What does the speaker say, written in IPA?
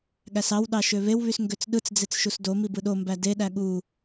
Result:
ɠ æ s ɑ w ɗ ɑ ʃ ø β e w β y s ŋ ɡ ø t͡s ɗ ɯ t͡s d͡z e t͡s ʃ u s d o m i b ɯ ɗ o m b æ d e ɗ æ ɠ u

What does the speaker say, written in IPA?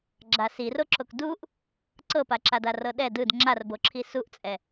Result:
ɡ͡ǁ a s i r o ǁ o k d u ʔ | ǀ ɤ p a ǁ a d a r ɤ ɗ ɛ d ɯ d ŋ͡ǁ a r b o ǁʰ i s u ʔ t͡sʼ ɛ

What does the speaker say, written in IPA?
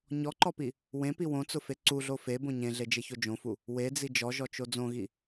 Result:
ɲ ɔ ǃ ɔ p i | w ẽ p i w õ t͡s ʊ f e ǀ u ɮ o f e b õ ɲ ẽ ɮ e d͡ʒ e ç o d͡ʒ õ f u | w e d͡z i d͡ʒ ɔ ʒ ɔ t͡ʃ o d͡z õ ɣ i

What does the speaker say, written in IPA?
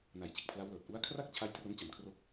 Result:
n a˨˩ j t͡ɕ e˨˩ k̚ pʰ l a˦˥ w l ɤː˨˩ t̚ ʔ u˦˥ a̯ kʰ r a˥˩ k̚ t͡ɕʰ a˦˥ j t r o˦˥ n t͡ɕ a˨˩ m kʰ r o˦˥ k̚

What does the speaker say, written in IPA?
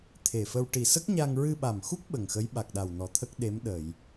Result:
t̪ʰ e˨˩ f ə˧ w ʈ i˨˩ s ə˦˥ k̚ ɲ a˧ ŋ ɹ ɨ˧ ɓ a˨˩ m x u˦˥ k̚ ɓ ə˨˩ ŋ x ə˧˥ j ɓ a˨˩ k̚ ɗ a˨˩ w n ɔ˨˩ t̪ʰ ə˦˥ k̚ ɗ e˧˥ m ɗ ə˨˩˨ j

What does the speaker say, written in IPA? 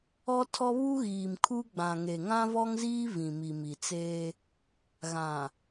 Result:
ɔ˦ tʰ ɔ˦ β u˦ ɣ iː˨ m kʰ u˦ ɡ͡b ã˨ ŋ e˨ ŋ ã˦ v ɔ˦ ŋ z iː˦ v ĩ˨ m i˨ m i˨ t͡s eː˦ | ɣ ã˨

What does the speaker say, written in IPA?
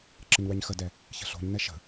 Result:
ǁ ə ɲ w ɛ ɲ x ə d ɛ | ç ə̤ ɬ o̤ ɲ n ɛ ʃ ə̤

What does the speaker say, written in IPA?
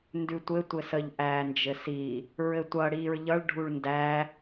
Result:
n d ʉ tʷ ɘ tʷ ɘ s ə ʎ ʔ æː n d͡ʒ ɘ s i | ɹ ɘ tʷ ʌ ɽ iː ɹ ʎ ʌ ɭ ɖʱ u ɭ n d æ

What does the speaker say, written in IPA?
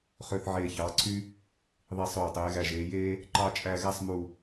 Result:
χ ø˧ θ ʕ eː˧˩ ç ɑː˩˧ ǀʰ y˥ | ðˤ i˧˩ sˤ øː˧˩ tˤ eː˩˧ ɣ æ˧˩ ʒ eː˩˧ j eː˥ | ǃ ɑ˥ t͡ʃʼ æ˥˧ ɣ æ˥ sˤ m u˧˩

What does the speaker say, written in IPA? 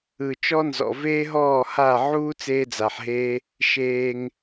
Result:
ɯ˨ t͡ʃ ɔ˦ n z ɔ̰˨ v eː˦ ɦ ɔː˦˨ h a˦˨ ʕ uː˦ t͡s eː˦ d͡z a˨ ħ ɦ eː˦ | ʃ eː˧ ŋ

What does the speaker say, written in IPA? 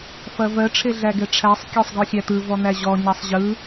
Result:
f ɐ v ɜ ʈ͡ʂʰ e ɮ æ ɡ ɛ ʈ͡ʂʰ æ sˤ kʲ æ sˤ ɡ ɔ xʲ æ t̪ ɯ v ɔ n̪ æ ʑ ɔ ɲ ɐ sˤ ʑ ɯ

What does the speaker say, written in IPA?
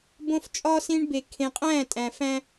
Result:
b õ˦ f t͡ʃʼ ɒː˦ s ĩ˦ ɳ b e˨ kʰ ẽ˨ qʼ æ̃ː˦˨ tʼ æ̃˨ f æ̃˦

